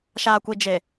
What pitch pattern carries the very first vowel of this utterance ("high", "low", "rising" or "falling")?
low